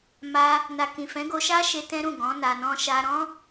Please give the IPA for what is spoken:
m a˧ | n a˨ k ĩ˨ f ɛ̃˨˦ ɡ o˧ ʃ a˦ ʃ e˧ t ɛ̃˦ ɾ ũ˦˨ ɡ ɔ̃˨˦ n a˧ n ɔ̃˦ ʃ a˦ ɾ ɔ̃˦

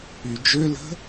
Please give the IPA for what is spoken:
y d͡ʒ ø l ə̤

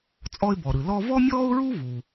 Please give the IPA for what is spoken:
t͡sʼ ɔ˧ ɪ̯ b ɔ˩ ɾ ɯ˩ l ɔ˧ v ɔ˥ mʲ ɔː˥ ʊ̯ ɹ u˥ v u˩

